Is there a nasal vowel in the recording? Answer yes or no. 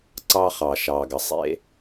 no